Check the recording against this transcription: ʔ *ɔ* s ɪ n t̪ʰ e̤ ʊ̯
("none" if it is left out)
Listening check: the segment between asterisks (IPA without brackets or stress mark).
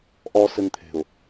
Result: ɔ